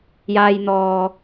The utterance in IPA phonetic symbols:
j aː˥ j n̪ ɔː˧

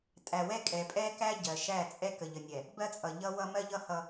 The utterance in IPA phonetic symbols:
tʼ æ˨ w ɛ˦ kʼ ɛ˨ pʼ ɛ˦ k æ˦ ɟ ɜ˨ ʃ æ˦˨ t͡sʼ ɛ˦ k ə˨ ʎ ə˨ nʲ ɛ˨ | b ɜ˦ t͡sʼ ʌ˨ ʎ ʌ˦ w ʌ˦ m ɜ˦ ʎ ʌ˦ h ʌ˦

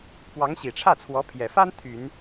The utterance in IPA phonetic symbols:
p w ɑ˧˥ ŋ ɕ i˨˩ ʈ͡ʂʰ ä˥˩ t͡sʰ w ɔ˧˥ pʰ j ɛ˨˩ f a˥ n t̪ʰ y˨˩˦ n

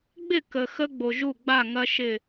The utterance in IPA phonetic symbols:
ɡ͡b ɪ˦˨ k ə˨ x ə˦ ɡ͡b o˨ ʒ u˦˨ ɡ͡b a˦˨ ŋ ɐ˦ ʃ ɪ˦˨

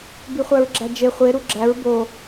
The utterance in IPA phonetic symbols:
b i χʷ æ ɹ ɡ͡ǁ æ d͡ʒ e χʷ e ɾ u ɡ͡ǁ æ ɹ b o

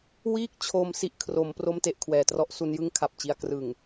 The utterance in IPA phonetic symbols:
w iː˥˩ k̚ t͡ɕʰ oː˧ m s i˥˩ ʔ kʰ r o˩˦ m p r o˥˩ m t e˥˩ ʔ kʰ w ɛː˩˦ t r ɔ˦˥ ʔ s u˧ n j ɯ˥˩ ŋ kʰ a˨˩ p̚ t͡ɕ i˧ a̯ k r ɯ˨˩ ŋ

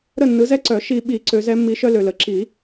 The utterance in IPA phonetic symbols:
ɾ ə˦˨ nː ɯ˨˦ z ɛ˦ ǀ œ˨˩˦ ʃ i˨ ɓ i˨˩˦ ǀ ø˨˦ z ɛ˨˦ mː i˨˦ ʃ œ˦ l ø˨ l ə˨˩˦ ǁ i˨˩˦

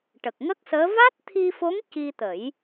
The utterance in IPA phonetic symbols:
ʈ ə˨˩ k̚ ŋ ə˦˥ k̚ s əː˧˥ v a˦˥ t̚ t̪ʰ i˧ f o˧˥ ŋ c i˧ t̪ ə˨˩˦ j

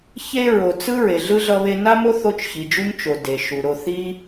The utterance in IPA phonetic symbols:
ç e˦ ɹ o˩ t͡s ɯ˥ ɹ e˩ ɮ ɯ˥ ɮ ʌ˦ β e˦ n a˥ m o˥ θ o˦ t͡ʃ ç i˩ d͡ʒ u˥ ɲ t͡ʃ o˩ d e˩ ʃ u˩ ɾ o˨ θ i˥

